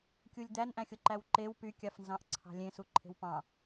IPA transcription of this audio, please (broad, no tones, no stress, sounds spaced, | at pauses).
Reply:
kʲ u lʲ d̪ æ n ʔ æ̃ xʲ o ǃ æ w ǃ e w p y kʲ ɑ f n z ɑ̃ ʔ ǀʰ ɑ̤ lʲ ẽ s u ǃʰ e̤ w p ɑ̃